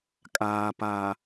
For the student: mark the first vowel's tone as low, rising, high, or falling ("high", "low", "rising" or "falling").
low